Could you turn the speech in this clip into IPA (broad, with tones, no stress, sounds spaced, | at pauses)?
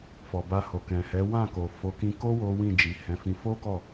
f ɔ˨ b a˧ h o˨ k ɛ̃˨ h ɛ˨˦ w ã˦˨ k o˨ f o˨˦ k ĩ˧ k o˦ w o˦ w ĩ˦˨ d͡ʒ i˨ h ɛ̃˨˦ f ĩ˧ f o˦ k ɔ˦˨